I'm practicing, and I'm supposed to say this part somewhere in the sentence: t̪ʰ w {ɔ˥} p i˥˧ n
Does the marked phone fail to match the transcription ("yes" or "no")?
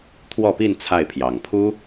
yes